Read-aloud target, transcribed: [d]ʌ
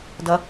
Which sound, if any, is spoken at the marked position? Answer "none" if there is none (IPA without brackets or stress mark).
d